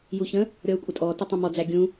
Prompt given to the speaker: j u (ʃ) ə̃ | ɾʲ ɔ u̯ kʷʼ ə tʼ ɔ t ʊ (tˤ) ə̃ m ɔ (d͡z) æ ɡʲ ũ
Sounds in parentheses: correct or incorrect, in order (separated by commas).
incorrect, correct, correct